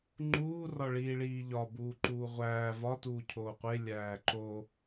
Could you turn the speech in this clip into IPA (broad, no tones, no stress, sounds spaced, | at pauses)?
ŋ͡ǃ uː r ɒ ɭ iː ɭ iː ʎ ɒ b uː ǃ uː ʁʷ æː v ɒ t uː cʰ oː qʷ e lʲ æː ǃ o